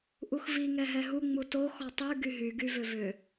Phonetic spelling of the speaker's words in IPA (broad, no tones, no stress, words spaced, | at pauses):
ʔuxvi ŋɛɦɛɦu ŋ͡muto xɔtˤy ɡyɦy ɡyvʏvʏ